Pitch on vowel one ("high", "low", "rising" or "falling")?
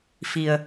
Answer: low